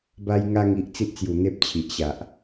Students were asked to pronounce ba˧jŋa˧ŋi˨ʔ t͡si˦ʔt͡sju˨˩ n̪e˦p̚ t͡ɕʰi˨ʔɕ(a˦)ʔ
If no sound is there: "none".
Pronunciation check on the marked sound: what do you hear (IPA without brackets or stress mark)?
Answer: a˨